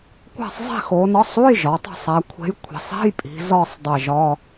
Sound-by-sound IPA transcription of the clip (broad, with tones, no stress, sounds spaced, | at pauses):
kʷ æ̤˦˨ sˤ zˤ i̤˦˨ x o˩˧ n ɒ˨˥ sˤ u˧˥˧ j ʒ ɒ˩˧ tˤ o̤˦˨ sˤ æ˩˧ kʷʰ e̤˨˥ j kʷʰ i̤˩˧ sˤ e̤˧˥˧ j pʼ i̤˩˧ z ɒ˦˨ sˤ dˤ e˦˨ ʒ ɒ˧˥˧